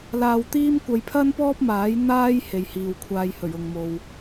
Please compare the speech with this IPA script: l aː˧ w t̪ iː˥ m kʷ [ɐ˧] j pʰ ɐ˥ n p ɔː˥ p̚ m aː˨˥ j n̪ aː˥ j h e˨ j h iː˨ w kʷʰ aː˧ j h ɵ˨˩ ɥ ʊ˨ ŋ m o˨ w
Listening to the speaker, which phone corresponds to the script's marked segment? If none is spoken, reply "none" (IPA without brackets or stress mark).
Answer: ɐ˧